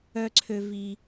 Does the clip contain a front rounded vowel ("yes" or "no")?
yes